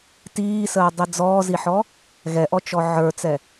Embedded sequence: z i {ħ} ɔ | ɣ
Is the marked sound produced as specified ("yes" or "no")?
yes